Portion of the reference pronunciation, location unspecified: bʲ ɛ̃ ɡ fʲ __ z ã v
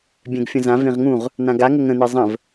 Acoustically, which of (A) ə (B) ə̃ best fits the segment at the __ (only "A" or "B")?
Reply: B